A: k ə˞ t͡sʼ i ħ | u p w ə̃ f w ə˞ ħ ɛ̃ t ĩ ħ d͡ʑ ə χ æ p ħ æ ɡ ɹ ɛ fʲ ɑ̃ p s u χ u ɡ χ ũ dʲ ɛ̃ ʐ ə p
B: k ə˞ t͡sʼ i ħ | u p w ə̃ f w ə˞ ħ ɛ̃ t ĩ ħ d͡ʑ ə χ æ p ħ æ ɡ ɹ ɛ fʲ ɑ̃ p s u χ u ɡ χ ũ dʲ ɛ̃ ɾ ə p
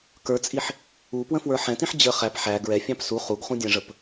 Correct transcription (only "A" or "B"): A